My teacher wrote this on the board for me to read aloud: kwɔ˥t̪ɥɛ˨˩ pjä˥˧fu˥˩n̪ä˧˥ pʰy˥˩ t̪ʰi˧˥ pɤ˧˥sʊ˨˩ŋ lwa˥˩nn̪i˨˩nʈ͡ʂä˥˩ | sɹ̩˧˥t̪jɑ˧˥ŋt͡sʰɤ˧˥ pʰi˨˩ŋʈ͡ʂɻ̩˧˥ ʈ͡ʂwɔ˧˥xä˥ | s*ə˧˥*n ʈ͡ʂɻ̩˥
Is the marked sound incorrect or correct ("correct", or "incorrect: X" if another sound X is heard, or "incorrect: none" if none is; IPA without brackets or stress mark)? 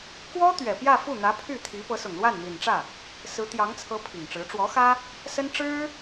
incorrect: ə˥